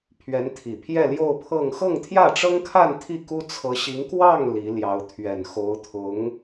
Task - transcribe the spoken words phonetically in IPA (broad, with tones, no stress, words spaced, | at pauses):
pʰɥɛ˧˥nt̪ʰi˨˩pʰjɛ˥˧ ljo˥˧ʊ̯pʰɤ˥˧ŋ xɤ˥˧ŋt̪ʰjä˥˩ʈ͡ʂɤ˥ŋkʰa˥˧n t̪ʰi˥˩ku˥ t͡sʰɤ˧˥ɕi˧˥ŋ kwɑ˥˩ŋ li˧˥ljɑ˧˥ʊ̯ t̪ʰɥɛ˨˩n xo˧˥ʊ̯t̪ʰʊ˧˥ŋ